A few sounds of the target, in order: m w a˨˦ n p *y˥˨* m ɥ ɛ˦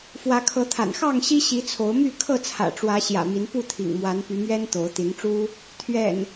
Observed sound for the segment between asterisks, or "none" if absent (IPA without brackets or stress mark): y˨˦